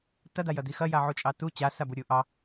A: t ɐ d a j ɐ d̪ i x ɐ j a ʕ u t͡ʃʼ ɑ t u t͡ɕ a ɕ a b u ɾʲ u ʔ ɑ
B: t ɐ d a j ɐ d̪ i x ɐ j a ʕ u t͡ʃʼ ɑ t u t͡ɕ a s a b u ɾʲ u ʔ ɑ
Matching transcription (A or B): B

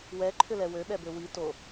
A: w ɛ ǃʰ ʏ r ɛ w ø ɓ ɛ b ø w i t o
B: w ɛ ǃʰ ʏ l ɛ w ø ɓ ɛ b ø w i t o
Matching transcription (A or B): B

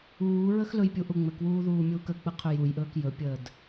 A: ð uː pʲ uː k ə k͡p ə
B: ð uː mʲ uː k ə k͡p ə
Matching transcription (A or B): B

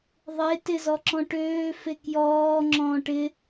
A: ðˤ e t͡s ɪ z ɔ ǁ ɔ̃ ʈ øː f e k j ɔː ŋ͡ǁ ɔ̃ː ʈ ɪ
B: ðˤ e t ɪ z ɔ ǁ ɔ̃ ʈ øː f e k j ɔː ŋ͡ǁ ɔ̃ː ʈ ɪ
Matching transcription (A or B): B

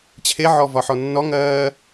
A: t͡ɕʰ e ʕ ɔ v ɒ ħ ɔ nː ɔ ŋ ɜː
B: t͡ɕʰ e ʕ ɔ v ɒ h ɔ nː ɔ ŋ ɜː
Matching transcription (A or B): A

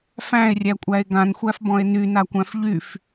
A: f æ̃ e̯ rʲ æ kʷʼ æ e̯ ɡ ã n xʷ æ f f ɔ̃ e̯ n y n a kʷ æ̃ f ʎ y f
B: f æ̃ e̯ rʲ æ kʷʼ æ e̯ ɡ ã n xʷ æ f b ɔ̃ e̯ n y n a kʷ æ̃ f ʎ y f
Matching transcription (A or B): B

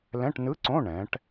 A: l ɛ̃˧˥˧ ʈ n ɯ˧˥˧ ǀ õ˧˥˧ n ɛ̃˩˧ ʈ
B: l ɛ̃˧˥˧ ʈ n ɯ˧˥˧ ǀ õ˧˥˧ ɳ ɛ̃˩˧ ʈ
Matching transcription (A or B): B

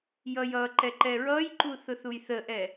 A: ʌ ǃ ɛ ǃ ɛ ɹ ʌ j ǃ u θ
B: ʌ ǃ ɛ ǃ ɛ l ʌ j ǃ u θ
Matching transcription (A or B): A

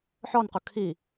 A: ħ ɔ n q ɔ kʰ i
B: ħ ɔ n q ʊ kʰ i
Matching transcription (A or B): B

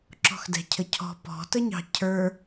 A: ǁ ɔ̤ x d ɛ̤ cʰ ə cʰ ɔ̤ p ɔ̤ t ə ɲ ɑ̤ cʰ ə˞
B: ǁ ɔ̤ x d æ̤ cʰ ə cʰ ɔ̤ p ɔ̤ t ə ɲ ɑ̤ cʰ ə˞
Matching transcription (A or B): A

